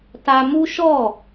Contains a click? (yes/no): no